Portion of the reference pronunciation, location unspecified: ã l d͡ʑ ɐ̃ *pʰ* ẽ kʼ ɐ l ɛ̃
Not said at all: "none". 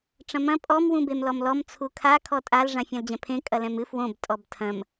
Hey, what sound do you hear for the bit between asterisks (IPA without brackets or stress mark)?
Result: pʰ